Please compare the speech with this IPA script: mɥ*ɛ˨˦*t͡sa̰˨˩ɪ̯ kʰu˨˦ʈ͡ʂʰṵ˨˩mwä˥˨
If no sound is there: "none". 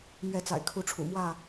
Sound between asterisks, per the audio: ɛ˨˦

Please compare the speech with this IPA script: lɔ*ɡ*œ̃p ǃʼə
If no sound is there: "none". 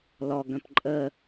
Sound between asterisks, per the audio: ɡ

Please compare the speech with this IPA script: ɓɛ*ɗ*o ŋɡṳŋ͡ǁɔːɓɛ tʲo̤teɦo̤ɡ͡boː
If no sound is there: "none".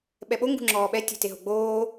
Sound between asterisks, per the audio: ɓ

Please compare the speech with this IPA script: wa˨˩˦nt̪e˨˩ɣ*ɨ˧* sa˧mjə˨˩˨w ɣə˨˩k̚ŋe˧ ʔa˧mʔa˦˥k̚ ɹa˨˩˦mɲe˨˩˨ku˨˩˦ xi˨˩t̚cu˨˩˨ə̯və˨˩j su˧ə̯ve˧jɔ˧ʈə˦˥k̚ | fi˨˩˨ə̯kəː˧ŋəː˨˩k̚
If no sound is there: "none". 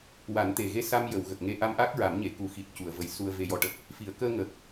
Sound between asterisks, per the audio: e˧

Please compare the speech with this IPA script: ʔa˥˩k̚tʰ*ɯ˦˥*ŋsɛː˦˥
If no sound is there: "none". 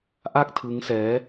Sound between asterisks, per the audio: ɯ˦˥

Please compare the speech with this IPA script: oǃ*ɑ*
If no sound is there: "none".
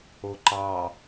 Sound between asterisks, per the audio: ɑ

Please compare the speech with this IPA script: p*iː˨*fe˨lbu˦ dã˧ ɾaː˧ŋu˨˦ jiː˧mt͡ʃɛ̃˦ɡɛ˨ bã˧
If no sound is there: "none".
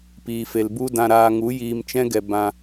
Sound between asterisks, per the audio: iː˨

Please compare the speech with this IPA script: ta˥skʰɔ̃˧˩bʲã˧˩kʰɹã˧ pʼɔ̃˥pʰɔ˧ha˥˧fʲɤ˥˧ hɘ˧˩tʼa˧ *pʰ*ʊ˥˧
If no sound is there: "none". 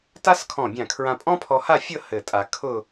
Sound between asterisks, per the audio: kʰ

